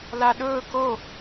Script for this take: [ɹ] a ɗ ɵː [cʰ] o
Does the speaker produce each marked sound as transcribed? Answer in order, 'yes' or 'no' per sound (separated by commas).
no, no